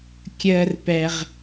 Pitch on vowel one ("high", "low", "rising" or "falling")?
high